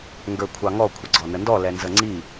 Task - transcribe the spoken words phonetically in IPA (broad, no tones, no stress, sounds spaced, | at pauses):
ŋ ɡ ə˞ kʷʰ ɑ ŋ ɔ kʷʰ ə ɡ͡ǀ ɔ n ə n d ɔ l ɛ n z ə ŋ͡ǀ i